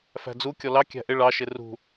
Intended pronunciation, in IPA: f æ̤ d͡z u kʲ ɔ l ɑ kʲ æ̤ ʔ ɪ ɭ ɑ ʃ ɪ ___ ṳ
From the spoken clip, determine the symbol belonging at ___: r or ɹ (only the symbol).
r